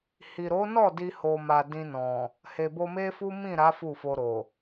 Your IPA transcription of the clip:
h i˨ ɾ o˨˦ n ɔ˦˨ d i˧ h o˨ m a˨ d ĩ˧ n ɔ̃˨ | h e˨ b o˧ m e˦ f u˦ m ĩ˦˨ ɾ a˨˦ f u˦˨ f o˧ ɾ o˨

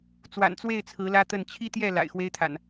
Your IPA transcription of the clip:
t͡s w a̰˨˩ n t͡s w e˥˨ ɪ̯ t͡sʰ ɹ̩˨˦ l ä˦ t̪ ə˥˨ n t͡ɕʰ i˦ t̪ j ɛ˥˨ l a̰˨˩ ɪ̯ x w e˦ ɪ̯ t̪ʰ a̰˨˩ n

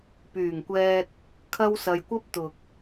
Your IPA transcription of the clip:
p yː˨˩ ŋ kʷ ɛː˧ t̚ | kʰ ɐ˥ w s ɐ˧ j kʷ ɐ˥ p̚ t̪ ʊ˨ k̚

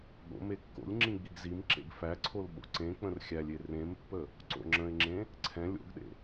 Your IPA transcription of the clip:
ɠ o̰ m e kː o̰ lʲ ŋ͡ǁ ĩ ɡ͡b i ɡ z i m ǁ ḛ ɡ f æ ǀʰ o l ɓ o̰ ǀ ẽ k͡p ə̃ r xʲ æ lʲ e r ẽ m pː ə | ǀ o̰ ŋ͡ǁ ə̃ ɪ̯ ŋ͡ǁ ẽ | ǀʰ ɛ̃ lʲ o̰ ɡ ɗ ḛ

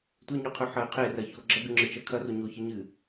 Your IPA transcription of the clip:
tʷ e ɲ o qʰ ʉ ħ ɐ y̯ qʰ e r ɐ ç o ɡ͡ǁ ɐ ɡ ʉ ŋ͡ǁ ɨ t͡ʃ ɐ kʰ ɐ r o ɲ o ç ɨ ɲ ɨ

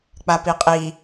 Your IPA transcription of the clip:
k͡p a p i qʼ i

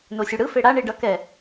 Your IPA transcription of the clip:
n o sʲ u ɽ ɯ f e ɽ a ɳ i ɖ ʌ k ɛ

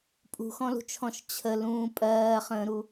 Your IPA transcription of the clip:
pʼ ṳ x ɔ̃ l ṳ t͡ʃʰ ɔ̃ ʃ t͡ɕʰ ə l ũː pʼ ɜː χ ə̃ː ɾ u

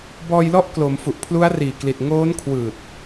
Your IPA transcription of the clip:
b ɔː˧ j l ɔ˦˥ ʔ k l o˩˦ m f u˨˩ ʔ pʰ l u˦˥ a̯ r iː˨˩ k l i˨˩ t̚ ŋ oː˦˥ n kʰ w ɯː˨˩ t̚

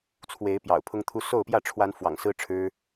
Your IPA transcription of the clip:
t͡sʰ w e˨˦ ɪ̯ p j ɑ̰˨˩ ʊ̯ pʰ ʊ˦ ŋ t̪ʰ u˦ s o˥˨ ʊ̯ p j ä˥˨ ʈ͡ʂʰ w a˦ n f w ɑ̰˨˩ ŋ s ɹ̩˦ ʈ͡ʂʰ ɻ̩˦

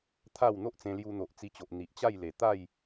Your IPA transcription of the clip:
t̪ʰ a˥˧ w n̪ o˦ ʔ t͡s ẽ˧ l j u˧ n̪ o˨ ʔ t͡s i˧ t͡ɕ o˨ ʔ n̪ i˨ ʔ t͡ɕ a˥˧ j l e˨˩ t̪ a˥˧ j

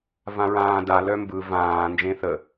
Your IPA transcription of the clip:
v ã ɹ ãː d a l œ m b ɯ v ãː n d͡ʒ ẽ θ ə

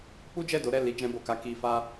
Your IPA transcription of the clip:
k͡p u˦ d͡ʒ ɛ˦˨ d o˨˦ ɾ ɛ˦˨ l i˨˦ d͡ʒ ɛ̃˧ b o˨ k a˧ k i˧ f a˦

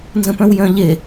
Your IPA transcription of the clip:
n z ə̃ p œ̃ w j œ̃ ʎ e

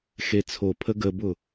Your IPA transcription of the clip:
x e t͡sʰ o pʰ ə ɡ ə b ʊ

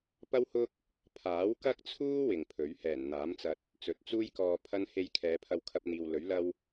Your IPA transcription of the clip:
p ɐ˥ w h ʊ˥ k̚ | pʰ aː˨˥ w k ɐ˥ k̚ t͡sʰ uː˥ w ɪ˨ ŋ pʰ ɵ˨˥ ɥ h ɛː˨˩ n n̪ aː˨˥ m t͡s ɐ˧ t̚ | t͡s ɵ˨˥ t̚ t͡s uː˥ j k ɔː˧ pʰ ɐ˥ n h e˧ j kʰ ɛː˨˧ pʰ ɐ˧ w kʰ ɐ˧ p̚ n̪ iː˨ w l ɵ˨˥ ɥ l ɐ˥ w

